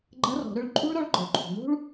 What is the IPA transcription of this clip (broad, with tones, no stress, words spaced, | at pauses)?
ɡ͡ǃɐ˧˥rɔ̤˩˧ɾʏ˧˥ɭǃʼṳ˥ɭ ɾɔ˧˥ɭɡ͡ǃɔ˩ɭǃʰṳ˩n̪ṳ˥ɭ